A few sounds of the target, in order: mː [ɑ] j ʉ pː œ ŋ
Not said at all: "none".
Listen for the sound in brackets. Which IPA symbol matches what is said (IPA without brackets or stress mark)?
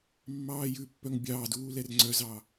ɑː